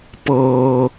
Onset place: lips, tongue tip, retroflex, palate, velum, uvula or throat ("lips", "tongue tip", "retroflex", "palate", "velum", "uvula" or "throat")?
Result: lips